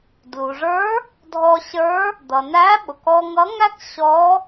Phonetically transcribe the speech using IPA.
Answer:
d l u˩ ʐ ə˞˧˥ | dʱ ɔ˧ ɕ ə˞˧˥ | d̪ ʌ˩ n æ˧˥ ɓ ʊ˩ k ɔ˧ ŋ ʌ˧˥ ŋ æ˥ k ɕ ɔ˧˥

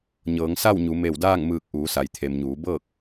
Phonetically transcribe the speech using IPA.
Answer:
ɲ ɤː˩˧ ŋ s a˥˨ w ɲ u˩˧ m e˧˩ w d aː˥˨ ŋ m ɯː˧˩ k̚ ʔ uː˩˧ s a˩ j t̪ʰ e˩ m ɲ uː˩˧ b ɤː˥˨ k̚

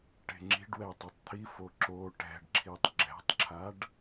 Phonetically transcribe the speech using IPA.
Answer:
ʈ e̤ ŋ͡ǁ i̤ ɖ w ɛ tˤ ø tˤ t̪ʰ i f o ǁ o ʈ ɛ̤ ɖ ǁʰ i tˤ ɡ͡ǁ ɛ̤ tˤ ǁʰ a ɖ

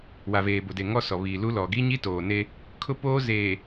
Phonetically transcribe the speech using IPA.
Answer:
w a˨ v eː˨ b ʊ˨ d e˨ ŋ ɔ˦ s ɔ˨ β iː˨ l u˦ l ɔ˨ ɡ i˦ ɲ i˦ t oː˨ n e˦ | kʰ ʊ˦ p oː˦ z eː˨

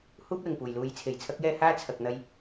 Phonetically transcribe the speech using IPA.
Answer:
h uː˥ p̚ l ɪ˨˩ ŋ p uː˨˩ j l uː˨˧ j t͡sʰ e˨˩ j t͡sʰ ɐ˥ k̚ j ɛː˥ h aː˥ t͡sʰ ɐ˨ k̚ n̪ ɐ˧ j

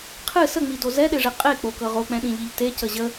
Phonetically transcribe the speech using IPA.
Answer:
qʰ ɨ s ə ŋ͡m i d o z ɛ ɗ e ʐ e qʼ e k͡p o k ɤ ʁ o k͡p ɛ̃ ɗ ĩ ʎ i ʎ t e c ə ʑ ə

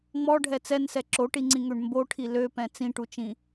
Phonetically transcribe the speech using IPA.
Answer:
ŋ͡m ɔ ɖʱ ɛ t͡s ɛ n s ɛ ǁ o ʈ i ŋ͡ǀ ĩ ŋ ø ɳ m b o ʈʰ i l ø p ɛ̃ t͡s ĩ ʈ u t͡ʃ ĩ

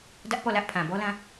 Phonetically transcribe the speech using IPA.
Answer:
d ä˦ ʔ p ɔ˦˨ l ä˦ ʔ pʰ ã˨ b ɔ˦ l ã˦

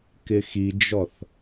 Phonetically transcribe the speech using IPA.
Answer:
k ɪ x i d͡ʒ ɔ θ

